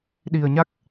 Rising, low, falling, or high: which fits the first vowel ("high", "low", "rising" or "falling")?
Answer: low